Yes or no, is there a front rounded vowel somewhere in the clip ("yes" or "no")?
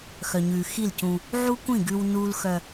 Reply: yes